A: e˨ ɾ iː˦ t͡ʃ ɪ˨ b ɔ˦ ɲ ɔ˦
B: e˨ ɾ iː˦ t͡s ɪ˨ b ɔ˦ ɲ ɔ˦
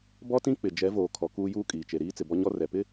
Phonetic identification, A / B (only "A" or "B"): B